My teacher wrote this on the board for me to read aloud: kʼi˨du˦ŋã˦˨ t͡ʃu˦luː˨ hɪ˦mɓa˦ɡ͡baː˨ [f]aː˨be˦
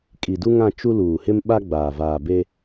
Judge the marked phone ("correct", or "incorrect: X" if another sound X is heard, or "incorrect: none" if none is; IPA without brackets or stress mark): incorrect: v